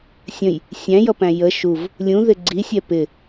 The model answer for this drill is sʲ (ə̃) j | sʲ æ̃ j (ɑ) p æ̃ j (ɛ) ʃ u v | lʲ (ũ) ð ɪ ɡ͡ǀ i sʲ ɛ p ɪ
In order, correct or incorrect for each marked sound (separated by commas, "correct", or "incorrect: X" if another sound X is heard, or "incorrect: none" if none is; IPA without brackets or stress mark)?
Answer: correct, incorrect: ʌ, incorrect: ə, correct